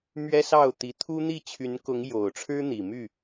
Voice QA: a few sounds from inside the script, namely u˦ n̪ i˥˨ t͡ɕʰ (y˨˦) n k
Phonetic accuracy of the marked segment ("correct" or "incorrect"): correct